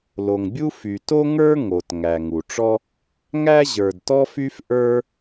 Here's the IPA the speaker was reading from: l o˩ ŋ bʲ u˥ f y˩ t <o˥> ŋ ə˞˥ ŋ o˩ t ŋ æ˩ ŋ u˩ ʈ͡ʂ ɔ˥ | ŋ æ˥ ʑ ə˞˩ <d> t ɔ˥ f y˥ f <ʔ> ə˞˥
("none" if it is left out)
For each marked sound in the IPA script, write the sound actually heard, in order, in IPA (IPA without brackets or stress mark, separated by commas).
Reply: o˥, d, ʔ